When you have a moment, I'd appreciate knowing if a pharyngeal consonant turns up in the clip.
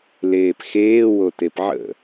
yes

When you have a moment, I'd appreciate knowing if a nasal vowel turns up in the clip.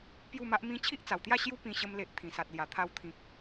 yes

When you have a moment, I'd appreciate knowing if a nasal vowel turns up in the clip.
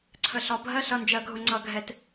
no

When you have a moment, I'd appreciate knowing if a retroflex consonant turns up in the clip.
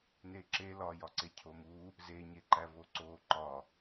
no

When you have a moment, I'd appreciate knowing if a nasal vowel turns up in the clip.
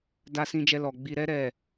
yes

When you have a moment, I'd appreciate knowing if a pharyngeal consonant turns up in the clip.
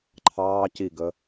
no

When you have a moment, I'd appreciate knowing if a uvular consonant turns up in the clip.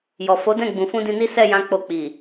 no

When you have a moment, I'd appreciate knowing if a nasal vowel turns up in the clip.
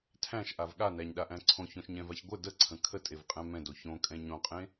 yes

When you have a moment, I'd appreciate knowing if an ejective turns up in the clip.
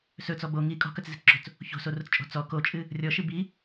yes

